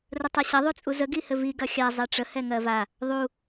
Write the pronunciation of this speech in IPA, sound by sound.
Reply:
r ə tˤ a ɕ ɐ ðˤ u t͡sʼ u z ə ɡ i h ɘ v i ɡ ɐ xʲ a zˤ ɛ ʈ͡ʂ ə h ɛ ŋ ɜ v a | ðˤ u

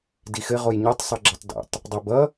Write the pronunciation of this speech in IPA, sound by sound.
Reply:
d i x ɘ ʁ o j ɲ o tˤ sˤ ʌ ɡ͡ǁ ə tˤ d ɛ̰ tˤ | dˤ o b ʌ

